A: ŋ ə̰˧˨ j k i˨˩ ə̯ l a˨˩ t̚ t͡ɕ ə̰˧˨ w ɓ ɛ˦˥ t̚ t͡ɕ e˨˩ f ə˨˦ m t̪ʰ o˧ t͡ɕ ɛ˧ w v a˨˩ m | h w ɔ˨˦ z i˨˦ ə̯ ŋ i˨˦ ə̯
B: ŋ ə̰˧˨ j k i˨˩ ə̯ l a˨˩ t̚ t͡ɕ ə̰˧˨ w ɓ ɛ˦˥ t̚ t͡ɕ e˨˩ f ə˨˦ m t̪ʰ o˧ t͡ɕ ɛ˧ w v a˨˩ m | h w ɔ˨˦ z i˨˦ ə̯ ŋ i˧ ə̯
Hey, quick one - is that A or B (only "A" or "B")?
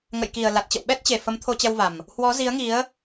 A